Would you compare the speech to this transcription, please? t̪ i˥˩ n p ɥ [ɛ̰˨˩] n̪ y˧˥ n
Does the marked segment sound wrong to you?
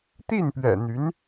no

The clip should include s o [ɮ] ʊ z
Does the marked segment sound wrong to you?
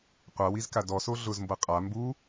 no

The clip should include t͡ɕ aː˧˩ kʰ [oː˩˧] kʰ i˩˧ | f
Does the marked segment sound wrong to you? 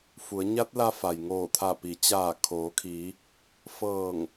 no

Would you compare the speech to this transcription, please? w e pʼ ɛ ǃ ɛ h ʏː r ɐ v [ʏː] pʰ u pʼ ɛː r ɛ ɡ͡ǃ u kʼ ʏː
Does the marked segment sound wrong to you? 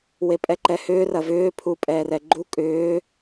no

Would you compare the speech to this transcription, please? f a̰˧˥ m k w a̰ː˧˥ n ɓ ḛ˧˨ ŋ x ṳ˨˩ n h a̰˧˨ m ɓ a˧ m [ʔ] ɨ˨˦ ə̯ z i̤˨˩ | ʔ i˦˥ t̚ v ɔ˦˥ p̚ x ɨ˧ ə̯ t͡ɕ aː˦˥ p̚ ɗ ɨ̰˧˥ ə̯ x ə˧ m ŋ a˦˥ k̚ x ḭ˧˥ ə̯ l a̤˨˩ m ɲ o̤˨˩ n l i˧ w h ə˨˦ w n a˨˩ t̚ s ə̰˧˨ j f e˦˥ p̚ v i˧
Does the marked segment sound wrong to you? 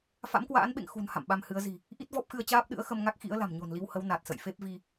yes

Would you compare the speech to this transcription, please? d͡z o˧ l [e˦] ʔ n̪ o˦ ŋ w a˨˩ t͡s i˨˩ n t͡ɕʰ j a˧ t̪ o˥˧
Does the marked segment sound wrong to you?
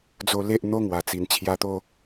no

